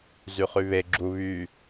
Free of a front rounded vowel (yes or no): no